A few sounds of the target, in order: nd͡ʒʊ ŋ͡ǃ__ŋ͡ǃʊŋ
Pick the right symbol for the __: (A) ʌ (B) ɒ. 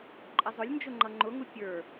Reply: A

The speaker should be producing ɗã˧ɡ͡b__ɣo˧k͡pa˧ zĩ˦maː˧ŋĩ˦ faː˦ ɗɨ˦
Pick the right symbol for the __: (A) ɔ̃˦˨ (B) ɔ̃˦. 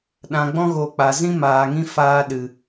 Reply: B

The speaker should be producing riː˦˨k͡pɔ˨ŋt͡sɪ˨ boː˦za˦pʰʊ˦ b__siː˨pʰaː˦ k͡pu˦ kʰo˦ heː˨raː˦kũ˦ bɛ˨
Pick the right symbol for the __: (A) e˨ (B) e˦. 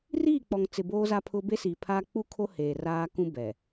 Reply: B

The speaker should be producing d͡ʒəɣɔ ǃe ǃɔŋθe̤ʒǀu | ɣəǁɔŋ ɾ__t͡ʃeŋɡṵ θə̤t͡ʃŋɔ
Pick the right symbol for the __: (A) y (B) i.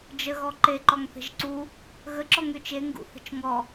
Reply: A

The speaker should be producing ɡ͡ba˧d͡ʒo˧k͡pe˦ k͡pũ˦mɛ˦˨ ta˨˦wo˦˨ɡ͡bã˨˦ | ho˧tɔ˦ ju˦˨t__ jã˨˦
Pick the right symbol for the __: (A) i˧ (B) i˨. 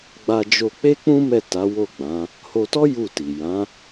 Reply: B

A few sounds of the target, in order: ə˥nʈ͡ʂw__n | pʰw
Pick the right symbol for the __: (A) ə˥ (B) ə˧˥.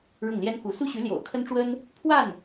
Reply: A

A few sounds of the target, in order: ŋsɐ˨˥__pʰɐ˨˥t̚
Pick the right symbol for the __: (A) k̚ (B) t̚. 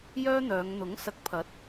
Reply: A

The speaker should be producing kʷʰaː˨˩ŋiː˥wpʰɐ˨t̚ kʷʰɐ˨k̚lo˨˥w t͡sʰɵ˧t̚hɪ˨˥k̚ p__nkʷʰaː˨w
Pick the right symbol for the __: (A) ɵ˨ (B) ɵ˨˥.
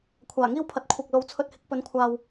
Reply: B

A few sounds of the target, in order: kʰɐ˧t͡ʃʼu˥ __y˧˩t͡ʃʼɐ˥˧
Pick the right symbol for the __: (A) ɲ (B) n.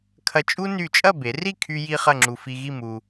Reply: B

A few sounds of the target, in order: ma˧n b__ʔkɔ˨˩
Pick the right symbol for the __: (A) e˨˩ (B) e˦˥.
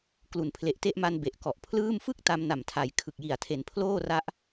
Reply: A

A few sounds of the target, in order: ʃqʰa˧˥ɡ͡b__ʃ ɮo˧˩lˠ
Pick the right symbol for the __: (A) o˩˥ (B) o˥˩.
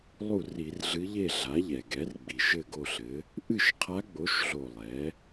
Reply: A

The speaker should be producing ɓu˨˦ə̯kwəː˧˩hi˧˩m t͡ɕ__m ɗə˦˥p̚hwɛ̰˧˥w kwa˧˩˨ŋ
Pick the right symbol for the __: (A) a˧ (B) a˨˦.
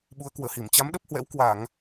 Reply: B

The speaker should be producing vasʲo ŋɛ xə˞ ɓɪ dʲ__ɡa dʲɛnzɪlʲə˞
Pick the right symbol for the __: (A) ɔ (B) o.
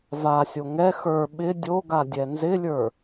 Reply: B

